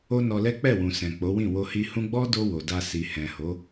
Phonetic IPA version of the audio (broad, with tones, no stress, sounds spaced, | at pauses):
o˦ n ɔ˧ l ɛ˦ k͡p ɛ˦˨ w ũ˨ s ɛ̃˨ k͡p o˨˦ w ĩ˦˨ w o˧ h i˧ h ũ˦ ɡ͡b ɔ˦ d o˧ w o˨ d a˧ s i˨ h ɛ̃˨ h o˨˦